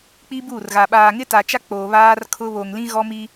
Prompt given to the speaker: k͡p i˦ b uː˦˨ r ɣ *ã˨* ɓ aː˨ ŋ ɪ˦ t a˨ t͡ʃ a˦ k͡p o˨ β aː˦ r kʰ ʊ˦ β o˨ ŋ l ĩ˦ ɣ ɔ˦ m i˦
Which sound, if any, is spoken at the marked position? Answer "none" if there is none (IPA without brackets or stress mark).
a˨